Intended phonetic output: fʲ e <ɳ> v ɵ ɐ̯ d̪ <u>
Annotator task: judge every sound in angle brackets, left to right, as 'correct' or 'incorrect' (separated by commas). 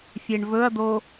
correct, incorrect